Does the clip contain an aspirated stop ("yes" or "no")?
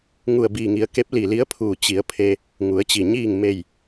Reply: yes